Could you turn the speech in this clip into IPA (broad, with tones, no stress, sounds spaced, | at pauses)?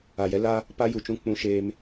a˨ j ɛ˦ l a˦ | p a˦ j u˨ t͡ʃ ũ˦ k͡p ũ˦ ʃ eː˦ m